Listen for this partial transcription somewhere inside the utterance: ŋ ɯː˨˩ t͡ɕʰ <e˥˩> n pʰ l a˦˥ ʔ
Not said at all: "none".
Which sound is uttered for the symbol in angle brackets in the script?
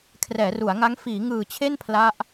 e˥˩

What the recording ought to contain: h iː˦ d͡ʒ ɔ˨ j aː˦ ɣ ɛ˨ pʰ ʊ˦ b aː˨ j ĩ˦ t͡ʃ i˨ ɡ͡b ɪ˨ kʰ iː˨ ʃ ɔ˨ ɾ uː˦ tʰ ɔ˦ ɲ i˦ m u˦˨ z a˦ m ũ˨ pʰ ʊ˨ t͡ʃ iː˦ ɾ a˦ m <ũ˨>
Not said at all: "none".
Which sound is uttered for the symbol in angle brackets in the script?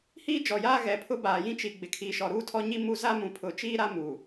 u˨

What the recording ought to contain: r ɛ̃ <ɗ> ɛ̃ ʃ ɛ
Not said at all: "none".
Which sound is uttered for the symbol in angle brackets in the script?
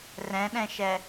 ɗ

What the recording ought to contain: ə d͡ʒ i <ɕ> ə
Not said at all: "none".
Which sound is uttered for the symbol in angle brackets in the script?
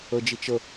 t͡ʃ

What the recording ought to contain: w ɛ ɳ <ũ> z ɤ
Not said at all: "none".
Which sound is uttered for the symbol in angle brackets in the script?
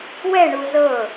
u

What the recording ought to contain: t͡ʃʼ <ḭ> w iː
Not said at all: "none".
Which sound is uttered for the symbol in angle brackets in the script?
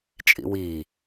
ḭ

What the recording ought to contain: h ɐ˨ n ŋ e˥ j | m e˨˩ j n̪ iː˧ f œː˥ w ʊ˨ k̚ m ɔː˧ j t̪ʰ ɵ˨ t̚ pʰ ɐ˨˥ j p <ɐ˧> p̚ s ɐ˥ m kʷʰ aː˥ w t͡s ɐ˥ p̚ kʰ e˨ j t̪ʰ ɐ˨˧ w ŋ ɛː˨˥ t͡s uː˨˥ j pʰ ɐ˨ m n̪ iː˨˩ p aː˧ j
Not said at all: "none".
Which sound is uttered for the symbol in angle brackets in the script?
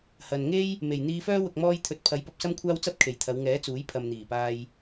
ɐ˧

